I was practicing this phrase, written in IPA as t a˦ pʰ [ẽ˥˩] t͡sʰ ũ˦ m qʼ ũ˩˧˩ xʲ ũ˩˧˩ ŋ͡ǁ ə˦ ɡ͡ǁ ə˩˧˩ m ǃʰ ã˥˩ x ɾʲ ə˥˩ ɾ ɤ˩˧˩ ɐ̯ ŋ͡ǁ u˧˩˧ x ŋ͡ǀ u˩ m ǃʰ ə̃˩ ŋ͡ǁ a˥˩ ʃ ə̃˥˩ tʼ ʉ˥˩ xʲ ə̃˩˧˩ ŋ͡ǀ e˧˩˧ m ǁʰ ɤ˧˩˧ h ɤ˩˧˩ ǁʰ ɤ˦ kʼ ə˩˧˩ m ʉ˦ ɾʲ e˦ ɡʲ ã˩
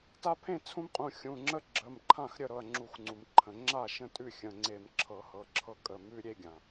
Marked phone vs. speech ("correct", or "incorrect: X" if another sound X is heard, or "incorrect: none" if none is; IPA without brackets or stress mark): correct